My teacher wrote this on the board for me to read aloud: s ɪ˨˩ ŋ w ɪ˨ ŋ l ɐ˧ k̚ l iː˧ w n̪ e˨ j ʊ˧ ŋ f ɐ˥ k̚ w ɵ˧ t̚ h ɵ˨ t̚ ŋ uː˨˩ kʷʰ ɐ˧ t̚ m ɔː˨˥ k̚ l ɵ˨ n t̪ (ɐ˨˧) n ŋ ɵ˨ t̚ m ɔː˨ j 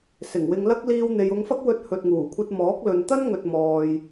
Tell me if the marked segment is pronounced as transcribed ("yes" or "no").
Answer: no